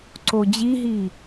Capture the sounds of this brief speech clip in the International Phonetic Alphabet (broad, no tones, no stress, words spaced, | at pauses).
ǀod͡ʑiɦi